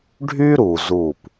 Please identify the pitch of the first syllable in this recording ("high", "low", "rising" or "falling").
high